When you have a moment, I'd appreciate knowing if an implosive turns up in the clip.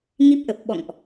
yes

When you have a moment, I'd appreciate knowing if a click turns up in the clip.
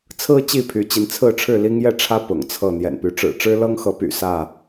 no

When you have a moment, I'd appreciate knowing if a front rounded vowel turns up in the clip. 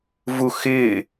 no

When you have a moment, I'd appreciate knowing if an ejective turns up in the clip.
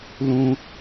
no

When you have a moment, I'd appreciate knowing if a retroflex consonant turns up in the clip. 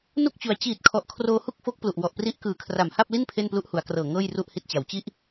no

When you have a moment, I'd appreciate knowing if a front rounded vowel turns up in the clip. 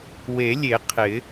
no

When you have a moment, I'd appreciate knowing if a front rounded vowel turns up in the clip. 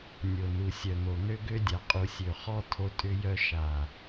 yes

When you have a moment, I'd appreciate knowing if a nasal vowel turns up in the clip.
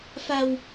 no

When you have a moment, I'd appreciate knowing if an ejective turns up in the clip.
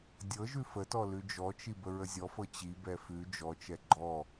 no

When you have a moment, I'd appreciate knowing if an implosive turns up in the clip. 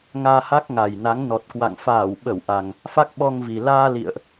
yes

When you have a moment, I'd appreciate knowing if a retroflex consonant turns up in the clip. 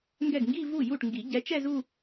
yes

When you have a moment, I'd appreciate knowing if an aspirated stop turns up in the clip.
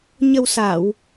no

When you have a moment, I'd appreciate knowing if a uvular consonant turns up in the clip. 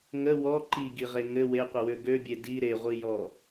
yes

